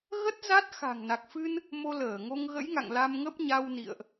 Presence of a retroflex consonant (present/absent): absent